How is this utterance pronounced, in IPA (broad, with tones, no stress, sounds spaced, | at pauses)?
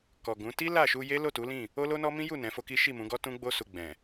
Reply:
k ɔ˨ ɡ ũ˨˦ t i˦ l a˦˨ ʃ u˧ j e˦ l o˦˨ t u˨˦ l ĩ˦˨ | o˦ l o˦ n ɔ˦ m ĩ˦ j u˦˨ n ɛ̃˨˦ f o˦ k i˦ ʃ i˦˨ m ũ˨˦ ɡ ɔ˦ t ũ˦ ɡ͡b o˦ s u˧ ɡ͡b ɛ̃˨